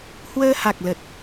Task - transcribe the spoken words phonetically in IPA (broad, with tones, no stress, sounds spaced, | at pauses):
h w əː˧ h a˨˩ k̚ l ə˨˩ t̚